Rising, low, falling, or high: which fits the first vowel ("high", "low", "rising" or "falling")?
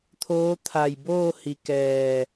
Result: rising